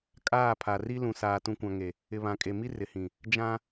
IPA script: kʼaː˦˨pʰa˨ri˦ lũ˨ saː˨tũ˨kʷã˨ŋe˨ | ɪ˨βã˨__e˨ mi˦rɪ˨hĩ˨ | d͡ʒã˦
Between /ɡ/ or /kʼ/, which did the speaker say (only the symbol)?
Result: kʼ